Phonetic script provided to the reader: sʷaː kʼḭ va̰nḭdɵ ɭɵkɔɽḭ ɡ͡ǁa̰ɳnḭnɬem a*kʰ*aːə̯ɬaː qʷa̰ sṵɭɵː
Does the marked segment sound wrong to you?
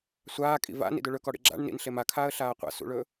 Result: no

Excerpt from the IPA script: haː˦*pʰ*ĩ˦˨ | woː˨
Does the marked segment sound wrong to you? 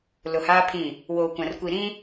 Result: no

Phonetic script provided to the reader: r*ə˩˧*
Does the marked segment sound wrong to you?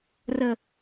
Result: yes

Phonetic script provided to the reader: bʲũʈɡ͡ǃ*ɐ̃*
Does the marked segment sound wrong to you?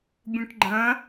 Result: no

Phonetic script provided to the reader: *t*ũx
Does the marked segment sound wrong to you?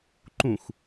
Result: yes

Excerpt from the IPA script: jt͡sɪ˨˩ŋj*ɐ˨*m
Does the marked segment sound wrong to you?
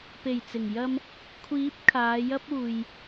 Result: yes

